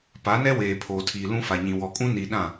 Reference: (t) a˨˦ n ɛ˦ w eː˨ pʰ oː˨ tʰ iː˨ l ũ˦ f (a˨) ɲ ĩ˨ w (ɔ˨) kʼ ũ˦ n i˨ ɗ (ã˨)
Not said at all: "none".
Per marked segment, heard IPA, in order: p, a˨, ɔ˨, ã˦˨

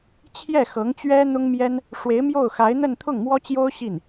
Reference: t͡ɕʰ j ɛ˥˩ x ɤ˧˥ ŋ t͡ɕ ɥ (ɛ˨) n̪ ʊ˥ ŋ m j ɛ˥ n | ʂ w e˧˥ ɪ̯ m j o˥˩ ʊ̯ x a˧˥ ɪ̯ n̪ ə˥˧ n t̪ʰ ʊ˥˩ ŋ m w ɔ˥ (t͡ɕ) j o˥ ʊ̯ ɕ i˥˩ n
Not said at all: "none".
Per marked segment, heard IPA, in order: ɛ˥, t͡ɕ

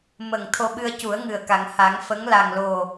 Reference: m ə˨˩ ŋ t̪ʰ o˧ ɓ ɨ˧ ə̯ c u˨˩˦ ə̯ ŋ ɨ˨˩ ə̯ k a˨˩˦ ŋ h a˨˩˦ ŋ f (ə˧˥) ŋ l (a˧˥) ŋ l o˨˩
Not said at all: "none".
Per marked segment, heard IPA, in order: ə˧˥, a˨˩

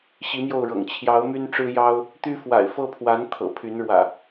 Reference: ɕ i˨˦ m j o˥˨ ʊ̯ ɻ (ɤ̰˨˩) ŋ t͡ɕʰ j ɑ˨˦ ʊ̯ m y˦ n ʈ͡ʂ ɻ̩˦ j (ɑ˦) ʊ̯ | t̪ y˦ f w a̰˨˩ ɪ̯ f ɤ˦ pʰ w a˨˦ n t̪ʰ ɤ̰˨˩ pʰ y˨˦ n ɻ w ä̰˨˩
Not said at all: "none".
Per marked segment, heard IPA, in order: ɤ̰˨˩, ɑ˦

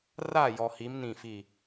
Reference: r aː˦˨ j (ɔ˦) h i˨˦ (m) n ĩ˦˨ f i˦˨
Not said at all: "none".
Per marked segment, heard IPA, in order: ɔ˨, m

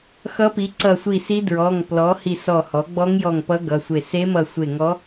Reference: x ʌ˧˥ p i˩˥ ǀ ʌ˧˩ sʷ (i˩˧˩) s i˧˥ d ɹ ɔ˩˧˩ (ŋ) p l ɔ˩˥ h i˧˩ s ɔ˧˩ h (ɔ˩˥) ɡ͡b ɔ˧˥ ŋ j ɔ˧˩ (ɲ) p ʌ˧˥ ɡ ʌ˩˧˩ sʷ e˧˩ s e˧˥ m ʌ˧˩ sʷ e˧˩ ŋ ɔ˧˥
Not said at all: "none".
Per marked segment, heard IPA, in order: i˧˩, ŋ, ɔ˩˥, ŋ

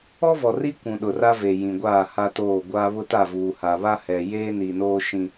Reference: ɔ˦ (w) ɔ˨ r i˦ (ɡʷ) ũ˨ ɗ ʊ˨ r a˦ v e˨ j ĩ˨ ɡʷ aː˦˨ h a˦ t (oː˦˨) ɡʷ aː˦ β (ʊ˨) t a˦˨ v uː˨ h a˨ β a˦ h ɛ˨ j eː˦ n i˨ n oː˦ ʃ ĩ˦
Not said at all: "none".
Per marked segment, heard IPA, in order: v, kʷ, oː˦˨, ʊ˦

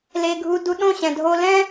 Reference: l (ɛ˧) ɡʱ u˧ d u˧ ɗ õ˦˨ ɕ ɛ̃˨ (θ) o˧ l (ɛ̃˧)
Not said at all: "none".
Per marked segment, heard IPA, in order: e˧, dʱ, ɛ̃˦

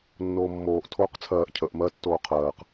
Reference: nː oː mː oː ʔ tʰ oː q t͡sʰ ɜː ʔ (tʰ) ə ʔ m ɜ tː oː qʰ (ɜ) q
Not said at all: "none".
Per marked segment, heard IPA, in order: cʰ, ɜː

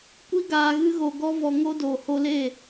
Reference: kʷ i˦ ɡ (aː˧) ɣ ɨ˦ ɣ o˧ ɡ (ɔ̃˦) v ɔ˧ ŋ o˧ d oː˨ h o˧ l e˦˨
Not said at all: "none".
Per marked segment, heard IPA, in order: aː˧, ɔ˦

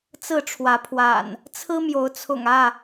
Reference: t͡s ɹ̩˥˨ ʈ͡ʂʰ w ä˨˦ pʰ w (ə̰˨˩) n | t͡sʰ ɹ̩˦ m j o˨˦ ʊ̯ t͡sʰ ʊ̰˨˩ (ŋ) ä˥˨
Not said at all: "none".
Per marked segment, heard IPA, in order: a̰˨˩, ŋ

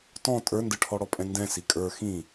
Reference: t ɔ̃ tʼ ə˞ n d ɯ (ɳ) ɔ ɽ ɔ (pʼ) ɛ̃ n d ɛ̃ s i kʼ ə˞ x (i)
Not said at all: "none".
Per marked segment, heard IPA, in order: ʈʰ, pʼ, ĩ

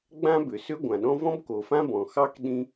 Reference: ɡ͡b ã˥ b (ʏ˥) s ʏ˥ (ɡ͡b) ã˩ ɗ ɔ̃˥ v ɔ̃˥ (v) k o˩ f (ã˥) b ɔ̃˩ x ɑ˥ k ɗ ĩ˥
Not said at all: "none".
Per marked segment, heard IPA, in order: ʏ˩, ɡʷ, b, ã˥

